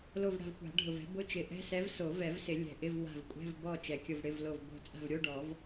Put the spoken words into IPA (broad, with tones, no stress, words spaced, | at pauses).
lo˦˨vɽa̤˦˨vkʷa̤˨˩˦ ɖʱʊ˨vɛ̤˧˥ bʊ˧˥˧t͡ʃɪ˨˩˦ʔɛ̤˧˥˧sɛ˧˥v so˨˩˦vɛ˨˩˦vsɪ˨˩˦ lʲɛ̤˨ʔɪ˧˥˧vwa̤˦˨v kʷʼɛ̤˧˥˧vbɔ˦˨ t͡ʃɛ˨kʲʊ˦˨vɽɪ˧˥˧vlo˦˨v bo̤˦˨ t͡sʼa̤˦˨vɾʲo˧˥˧ɖɔ˨˩˦v